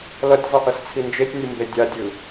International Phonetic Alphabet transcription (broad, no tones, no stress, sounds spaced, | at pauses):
l ʌ tʲ zˤ i ʔ ʌ s t͡sʰ i n d͡ʒ e tʲ nʲ ɯ m b e dʲ a dʲ ɯ